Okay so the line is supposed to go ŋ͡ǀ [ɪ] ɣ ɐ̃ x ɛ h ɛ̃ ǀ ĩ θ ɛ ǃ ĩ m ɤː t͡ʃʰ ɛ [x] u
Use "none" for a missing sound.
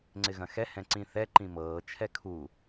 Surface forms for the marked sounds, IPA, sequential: ɪ, kʰ

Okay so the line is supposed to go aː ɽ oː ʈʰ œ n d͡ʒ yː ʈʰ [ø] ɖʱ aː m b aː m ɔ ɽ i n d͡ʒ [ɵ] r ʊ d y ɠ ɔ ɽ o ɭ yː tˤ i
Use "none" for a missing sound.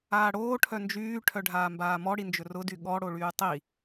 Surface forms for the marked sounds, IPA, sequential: œ, ɵ

